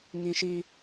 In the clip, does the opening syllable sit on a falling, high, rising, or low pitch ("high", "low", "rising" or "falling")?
high